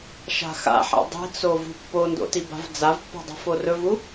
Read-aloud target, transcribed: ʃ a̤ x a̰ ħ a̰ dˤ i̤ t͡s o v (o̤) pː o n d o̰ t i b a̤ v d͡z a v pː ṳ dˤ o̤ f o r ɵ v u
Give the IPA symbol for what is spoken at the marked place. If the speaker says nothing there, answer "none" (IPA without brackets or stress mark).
ṳ